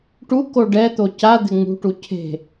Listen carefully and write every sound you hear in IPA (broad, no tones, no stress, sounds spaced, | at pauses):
ʈ u k o ɖ ɛ t̪ o c a d̪ ɪ ŋ͡m ṳ ʈ u cʰ e̤